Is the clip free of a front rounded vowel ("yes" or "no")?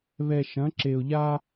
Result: yes